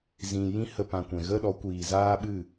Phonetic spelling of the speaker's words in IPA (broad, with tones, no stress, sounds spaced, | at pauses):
z ĩ˨ j ĩ˦ h ə˧ p ã˨ kʷ ɛ̃˨ ɣ ə˦ ɗ ɔ˨˦ kʷ iː˨ z aː˦ ɓ ɨ˦˨